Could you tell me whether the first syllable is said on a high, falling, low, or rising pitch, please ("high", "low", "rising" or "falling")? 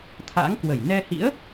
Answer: rising